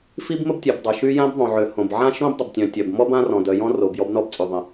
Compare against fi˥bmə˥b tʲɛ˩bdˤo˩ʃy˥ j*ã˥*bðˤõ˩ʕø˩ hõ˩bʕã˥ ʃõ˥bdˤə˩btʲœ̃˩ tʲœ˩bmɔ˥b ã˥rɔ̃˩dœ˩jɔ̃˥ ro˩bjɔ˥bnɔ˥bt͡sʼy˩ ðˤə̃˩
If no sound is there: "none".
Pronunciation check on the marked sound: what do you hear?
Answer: ã˥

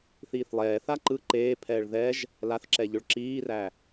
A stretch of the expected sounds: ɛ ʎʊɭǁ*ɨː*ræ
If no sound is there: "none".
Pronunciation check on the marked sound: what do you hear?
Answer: iː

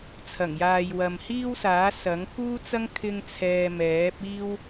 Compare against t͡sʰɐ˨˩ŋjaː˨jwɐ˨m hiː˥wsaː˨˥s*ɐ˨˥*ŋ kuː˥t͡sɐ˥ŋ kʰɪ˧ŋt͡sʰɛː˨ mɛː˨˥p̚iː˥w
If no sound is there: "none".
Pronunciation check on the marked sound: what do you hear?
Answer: ɐ˨˥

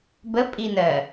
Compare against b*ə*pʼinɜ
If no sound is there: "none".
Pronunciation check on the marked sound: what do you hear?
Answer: ə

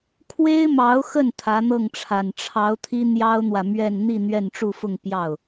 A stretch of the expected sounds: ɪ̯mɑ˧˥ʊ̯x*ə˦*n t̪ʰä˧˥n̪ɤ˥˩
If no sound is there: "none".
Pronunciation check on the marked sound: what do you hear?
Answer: ə˥˩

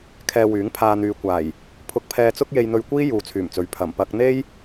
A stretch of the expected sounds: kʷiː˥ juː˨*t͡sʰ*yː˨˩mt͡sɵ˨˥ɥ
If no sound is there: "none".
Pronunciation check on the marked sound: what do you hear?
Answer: t͡sʰ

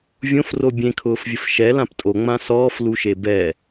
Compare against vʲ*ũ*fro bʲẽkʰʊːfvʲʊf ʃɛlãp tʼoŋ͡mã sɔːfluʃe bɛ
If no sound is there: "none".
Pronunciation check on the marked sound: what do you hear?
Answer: õ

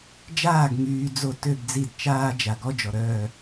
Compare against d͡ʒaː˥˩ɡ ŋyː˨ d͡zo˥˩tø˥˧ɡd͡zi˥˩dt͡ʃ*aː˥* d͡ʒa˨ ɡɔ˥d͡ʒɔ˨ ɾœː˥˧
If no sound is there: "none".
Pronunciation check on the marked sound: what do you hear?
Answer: aː˥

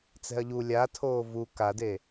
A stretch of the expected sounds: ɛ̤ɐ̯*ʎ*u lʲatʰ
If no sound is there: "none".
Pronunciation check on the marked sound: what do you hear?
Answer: ʎ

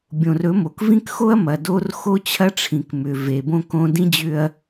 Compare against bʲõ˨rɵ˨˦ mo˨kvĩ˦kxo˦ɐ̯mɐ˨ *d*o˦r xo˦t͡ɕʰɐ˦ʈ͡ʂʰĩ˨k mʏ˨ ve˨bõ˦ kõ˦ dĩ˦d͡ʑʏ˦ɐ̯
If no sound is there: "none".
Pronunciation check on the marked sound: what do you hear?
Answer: d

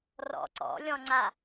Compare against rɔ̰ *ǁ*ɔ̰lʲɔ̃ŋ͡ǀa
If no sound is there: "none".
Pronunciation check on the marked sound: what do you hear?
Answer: ǀ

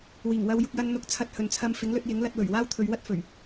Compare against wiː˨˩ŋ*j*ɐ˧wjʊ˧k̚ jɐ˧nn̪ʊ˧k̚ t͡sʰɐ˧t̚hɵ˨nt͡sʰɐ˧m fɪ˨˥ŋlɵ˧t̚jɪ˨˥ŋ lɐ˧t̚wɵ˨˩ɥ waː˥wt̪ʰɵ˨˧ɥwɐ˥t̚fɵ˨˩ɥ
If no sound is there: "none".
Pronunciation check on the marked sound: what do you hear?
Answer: w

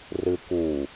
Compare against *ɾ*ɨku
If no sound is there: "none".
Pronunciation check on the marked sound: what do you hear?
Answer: r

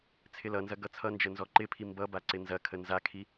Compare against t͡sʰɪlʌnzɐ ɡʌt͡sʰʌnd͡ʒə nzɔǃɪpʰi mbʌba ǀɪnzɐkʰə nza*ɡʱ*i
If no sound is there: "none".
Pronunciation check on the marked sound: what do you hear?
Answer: kʰ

